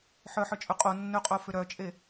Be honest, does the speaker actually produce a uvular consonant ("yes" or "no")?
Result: yes